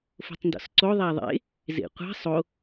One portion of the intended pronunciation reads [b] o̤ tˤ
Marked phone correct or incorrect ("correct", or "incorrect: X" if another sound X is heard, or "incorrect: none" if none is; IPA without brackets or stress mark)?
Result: incorrect: f